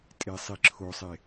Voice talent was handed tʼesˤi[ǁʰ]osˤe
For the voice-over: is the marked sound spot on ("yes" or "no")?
yes